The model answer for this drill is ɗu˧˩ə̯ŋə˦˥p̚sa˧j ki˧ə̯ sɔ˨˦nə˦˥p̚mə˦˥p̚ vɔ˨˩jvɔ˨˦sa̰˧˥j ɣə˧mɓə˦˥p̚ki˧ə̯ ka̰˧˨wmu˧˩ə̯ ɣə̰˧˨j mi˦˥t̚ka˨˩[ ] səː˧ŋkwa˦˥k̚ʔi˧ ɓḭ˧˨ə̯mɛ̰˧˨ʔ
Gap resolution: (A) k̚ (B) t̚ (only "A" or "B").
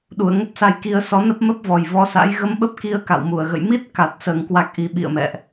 B